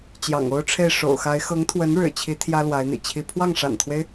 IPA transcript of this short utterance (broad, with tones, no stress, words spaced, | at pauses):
t͡ɕjɑ̰˨˩ŋo˥ʊ̯ʈ͡ʂʰe˥˩ɪ̯ ʂo̰˨˩ʊ̯xa˧˥ɪ̯ xɤ˧˥ŋt̪ʰwə˧˥n ɻɻ̩˨˩t͡ɕʰi˧˥ t̪ʰjä˥lwa˧˥ɪ̯n̪ḭ˨˩t͡ɕʰi˥ pʰwɑ˥˩ŋʂa̰˨˩nt̪ʰwe˦ɪ̯